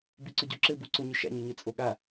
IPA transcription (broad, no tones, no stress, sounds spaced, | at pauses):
b i ǀ ʊ ɟ o ǁ ɘ b u ǀ ʊ ɲ ʊ ʃ a̰ ɲ ø ɲ ɘ t͡sʼ o ɠ a